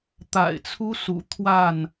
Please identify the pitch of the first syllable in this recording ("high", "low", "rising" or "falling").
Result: low